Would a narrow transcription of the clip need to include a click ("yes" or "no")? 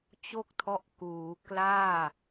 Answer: no